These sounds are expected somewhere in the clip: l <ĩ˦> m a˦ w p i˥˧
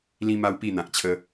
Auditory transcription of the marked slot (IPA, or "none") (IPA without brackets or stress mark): ĩ˦